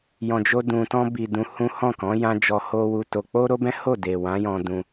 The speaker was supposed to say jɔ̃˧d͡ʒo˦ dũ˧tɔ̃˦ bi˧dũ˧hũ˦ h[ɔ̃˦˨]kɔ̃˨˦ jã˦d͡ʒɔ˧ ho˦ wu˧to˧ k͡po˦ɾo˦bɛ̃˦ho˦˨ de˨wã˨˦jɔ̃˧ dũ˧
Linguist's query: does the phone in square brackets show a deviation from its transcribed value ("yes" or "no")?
no